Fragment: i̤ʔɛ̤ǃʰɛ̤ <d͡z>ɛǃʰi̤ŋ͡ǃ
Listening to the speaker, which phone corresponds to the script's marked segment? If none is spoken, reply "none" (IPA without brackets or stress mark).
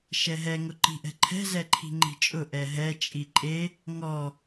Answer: z